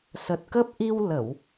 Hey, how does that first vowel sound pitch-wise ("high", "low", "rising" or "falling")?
low